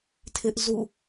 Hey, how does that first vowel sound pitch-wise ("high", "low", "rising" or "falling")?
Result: high